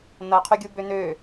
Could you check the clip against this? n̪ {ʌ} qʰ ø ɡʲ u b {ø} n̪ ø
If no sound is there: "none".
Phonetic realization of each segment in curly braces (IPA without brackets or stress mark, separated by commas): ʌ, ø